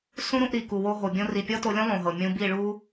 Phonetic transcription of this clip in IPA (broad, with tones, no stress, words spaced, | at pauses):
sũ˦ɾũ˧ʔ ɾi˨ku˨wo˧ ɦo˨bʲõ˦ ri˨pʲɔ˦to˧lʲõ˦ lˠõ˨ɦɤ˨ mʲũ˧ bi˦˨ɭu˦